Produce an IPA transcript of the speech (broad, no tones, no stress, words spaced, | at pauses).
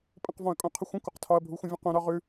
pʼə̃qvɔ̃ɐ̯kʼũ qʰəxʷə̃kʷəq tʰɒɐ̯bʱuxʷə̃ vʲə̃qũ ɾɒʁʉ